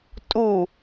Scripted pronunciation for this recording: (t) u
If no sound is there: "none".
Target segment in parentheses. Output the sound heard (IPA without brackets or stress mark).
tʼ